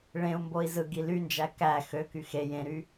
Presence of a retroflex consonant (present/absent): present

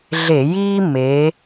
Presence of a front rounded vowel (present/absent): absent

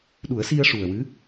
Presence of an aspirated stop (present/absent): absent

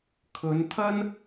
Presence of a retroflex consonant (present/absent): absent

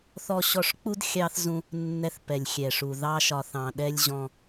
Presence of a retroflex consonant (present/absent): present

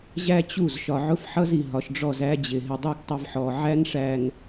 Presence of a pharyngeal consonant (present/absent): present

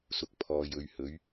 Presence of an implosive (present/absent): absent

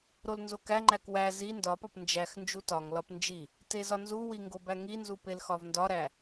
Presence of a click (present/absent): present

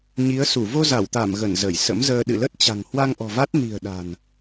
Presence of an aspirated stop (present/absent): absent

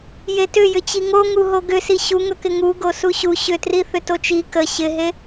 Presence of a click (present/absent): absent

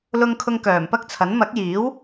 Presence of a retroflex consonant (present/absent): absent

